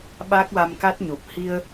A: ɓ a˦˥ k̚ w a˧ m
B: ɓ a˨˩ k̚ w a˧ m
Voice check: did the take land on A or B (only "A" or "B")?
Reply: A